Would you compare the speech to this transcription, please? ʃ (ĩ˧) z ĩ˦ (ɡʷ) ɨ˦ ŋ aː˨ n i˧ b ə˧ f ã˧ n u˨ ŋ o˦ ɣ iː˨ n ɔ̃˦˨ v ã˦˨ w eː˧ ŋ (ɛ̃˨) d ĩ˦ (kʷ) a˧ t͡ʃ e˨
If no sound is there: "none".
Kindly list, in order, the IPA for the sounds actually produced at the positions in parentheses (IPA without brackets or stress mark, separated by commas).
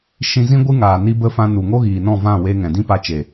ĩ˧, ɡʷ, ɛ̃˨, p